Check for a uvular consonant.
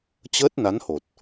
absent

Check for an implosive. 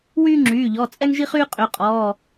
absent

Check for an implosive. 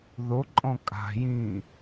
absent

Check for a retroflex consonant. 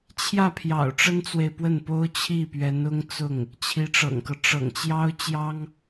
present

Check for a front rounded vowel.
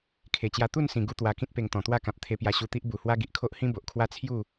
absent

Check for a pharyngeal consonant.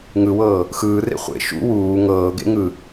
absent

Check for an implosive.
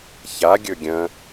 absent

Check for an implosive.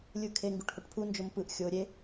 absent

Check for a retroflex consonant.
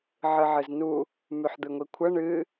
present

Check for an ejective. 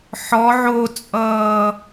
present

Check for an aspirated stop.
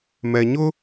absent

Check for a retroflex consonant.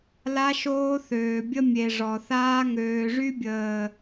present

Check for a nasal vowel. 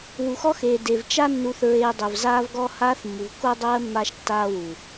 absent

